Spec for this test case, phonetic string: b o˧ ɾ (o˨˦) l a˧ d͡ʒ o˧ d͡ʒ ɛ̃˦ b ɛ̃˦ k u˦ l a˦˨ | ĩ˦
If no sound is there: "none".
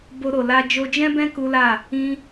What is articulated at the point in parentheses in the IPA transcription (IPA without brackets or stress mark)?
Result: o˨